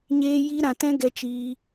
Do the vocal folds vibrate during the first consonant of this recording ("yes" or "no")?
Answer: yes